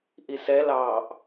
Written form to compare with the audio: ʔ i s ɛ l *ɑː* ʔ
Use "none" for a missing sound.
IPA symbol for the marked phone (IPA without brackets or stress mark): ɑː